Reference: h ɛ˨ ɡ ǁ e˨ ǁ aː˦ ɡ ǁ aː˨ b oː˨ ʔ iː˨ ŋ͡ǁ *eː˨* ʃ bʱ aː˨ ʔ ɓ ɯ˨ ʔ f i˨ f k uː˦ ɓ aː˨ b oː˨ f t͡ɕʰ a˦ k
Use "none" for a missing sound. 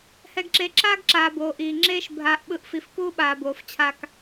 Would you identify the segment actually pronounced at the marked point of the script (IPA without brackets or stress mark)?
eː˦